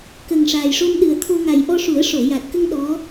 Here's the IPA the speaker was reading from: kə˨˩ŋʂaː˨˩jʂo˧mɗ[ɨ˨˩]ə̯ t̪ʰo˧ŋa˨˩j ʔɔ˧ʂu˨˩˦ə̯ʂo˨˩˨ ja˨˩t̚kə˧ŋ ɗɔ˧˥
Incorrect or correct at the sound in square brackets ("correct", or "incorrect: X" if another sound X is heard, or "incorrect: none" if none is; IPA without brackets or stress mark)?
correct